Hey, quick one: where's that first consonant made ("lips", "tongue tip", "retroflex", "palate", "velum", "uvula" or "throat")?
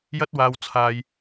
palate